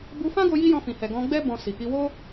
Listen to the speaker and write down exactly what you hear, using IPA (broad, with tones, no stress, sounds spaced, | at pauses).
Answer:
b u˧ f ã˦ ɡ o˧ j i˦ j ɔ̃˧ f ĩ˨ h ɛ˨ ɡ ɔ̃˧ ɡ͡b ɛ˦ b ɔ̃˧ s i˨ k i˧ w o˦